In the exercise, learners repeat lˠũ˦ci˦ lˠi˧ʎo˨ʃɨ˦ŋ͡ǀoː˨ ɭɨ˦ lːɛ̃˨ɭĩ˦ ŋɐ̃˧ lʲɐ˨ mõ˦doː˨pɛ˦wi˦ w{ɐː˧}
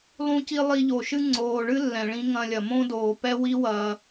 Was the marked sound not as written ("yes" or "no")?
no